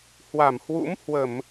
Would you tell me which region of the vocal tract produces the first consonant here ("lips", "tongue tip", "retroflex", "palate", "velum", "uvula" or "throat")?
throat